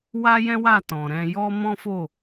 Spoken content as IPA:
w a˦ j ɛ̃˦ w a˦˨ t ɔ̃˨ ɾ ɛ̃˧ j ɔ˦ m ɔ̃˦ f o˦˨

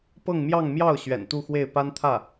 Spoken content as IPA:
p ɤ˥˧ ŋ m j ɑ˥˧ ŋ m j ɑ˥˩ ʊ̯ ɕ ɥ ɛ̰˨˩ n t̪ u˥˧ x w e˥˩ ɪ̯ p a˥ n t̪ʰ ä˥˩

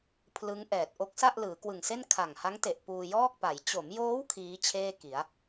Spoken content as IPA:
pʰ l ɯ˦˥ ŋ ʔ ɛː˨˩ t̚ ʔ o˦˥ k̚ s a˥˩ ʔ l ɯː˩˦ k w ɯ˨˩ ŋ s e˥˩ n kʰ a˨˩ ŋ h a˦˥ ŋ t e˨˩ ʔ p uː˧ j ɔː˥˩ k̚ p a˩˦ j t͡ɕ o˩˦ m j oː˦˥ w kʰ iː˦˥ t͡ɕʰ eː˥˩ k i˩˦ a̯

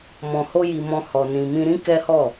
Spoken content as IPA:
m ɔ̃˧ h o˦ j i˧ m ɔ̃˧ h ɔ˧ n ĩ˧ m ĩ˦ ɾ ĩ˦ k ɛ˦ h ɔ˦˨

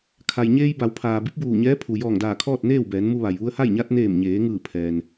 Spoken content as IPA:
kʰ a˩ j ɲ eː˧ j b a˩˧ w pʰ aː˩ b i˧˥ p̚ b uː˧˩ ɲ ɛː˧˥ pʰ u˩ j ɔː˧˩ ŋ d aː˧˩ kʰ ɔː˥˨ t̚ n eː˥˨ w b ɛː˩˧ n m u˧ ʋ a˩ j ʋ u˧ ə̯ h a˥˨ j ɲ a˧ t̚ n eː˧˩ m ɲ eː˩˧ ŋ ɯː˧˩ pʰ ɛː˩ n

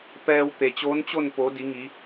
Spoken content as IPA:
p ɛː˧ w t̪ e˩ t͡ɕ oː˧˥ n t͡ɕ o˥˨ n p o˩˧ d i˩˧ ŋ i˩˧

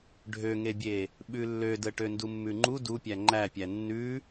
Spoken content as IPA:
ɖʱ ø ŋ e bʲ e | ɓ ʉ lː ø d ə ʈ ø n d u mː ʉ ŋ͡ǃ u d u pʲ æ ŋ͡ǃ æ pʲ æ nː ʉ

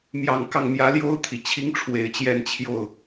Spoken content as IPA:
m j ɑ˨˩ ŋ k ɑ˥˩ ŋ m j ä˧˥ l j o˥ ʊ̯ t̪ʰ i˨˩ t͡ɕʰ i˧˥ ŋ ʈ͡ʂʰ w e˨˩ ɪ̯ t͡ɕ j ɛ˥˧ n t͡ɕʰ j o˥˩ ʊ̯

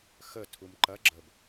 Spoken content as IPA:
x ə tʰ u m ǃ ɐ ɡ͡ǁ ə b

